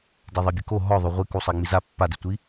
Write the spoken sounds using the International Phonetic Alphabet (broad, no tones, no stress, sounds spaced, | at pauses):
d e ðˤ e bʲ ɘ k o ɦ ɔ ðˤ o ʁʷ i k u sˤ e ŋ͡m i z a pː a d i tʷ i